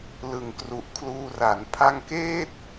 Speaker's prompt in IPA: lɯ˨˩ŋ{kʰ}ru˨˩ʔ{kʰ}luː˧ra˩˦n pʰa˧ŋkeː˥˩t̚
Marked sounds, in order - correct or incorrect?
incorrect: k, correct

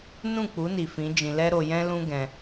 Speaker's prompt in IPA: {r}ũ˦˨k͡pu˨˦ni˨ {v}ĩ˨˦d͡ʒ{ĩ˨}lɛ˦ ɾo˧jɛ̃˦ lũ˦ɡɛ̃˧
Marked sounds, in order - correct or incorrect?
incorrect: n, incorrect: f, correct

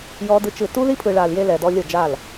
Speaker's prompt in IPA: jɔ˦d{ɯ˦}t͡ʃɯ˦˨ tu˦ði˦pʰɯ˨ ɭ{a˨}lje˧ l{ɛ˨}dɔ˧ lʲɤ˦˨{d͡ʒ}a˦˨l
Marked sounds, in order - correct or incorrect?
correct, correct, correct, correct

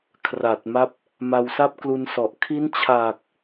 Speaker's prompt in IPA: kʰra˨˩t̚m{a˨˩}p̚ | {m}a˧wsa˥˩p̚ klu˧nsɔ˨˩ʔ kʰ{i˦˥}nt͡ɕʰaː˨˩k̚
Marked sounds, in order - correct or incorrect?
incorrect: a˦˥, correct, correct

